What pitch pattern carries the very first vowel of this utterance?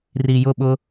low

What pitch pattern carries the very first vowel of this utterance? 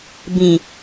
low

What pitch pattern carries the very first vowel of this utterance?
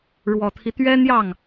low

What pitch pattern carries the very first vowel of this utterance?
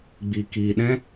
low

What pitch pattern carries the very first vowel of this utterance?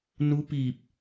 rising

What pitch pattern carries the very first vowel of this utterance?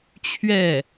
falling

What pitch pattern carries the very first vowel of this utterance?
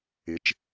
rising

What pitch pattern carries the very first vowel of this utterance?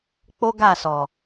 high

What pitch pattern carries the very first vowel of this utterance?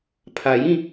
low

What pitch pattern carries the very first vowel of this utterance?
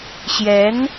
rising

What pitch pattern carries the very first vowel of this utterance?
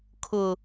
low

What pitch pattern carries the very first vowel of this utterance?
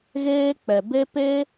high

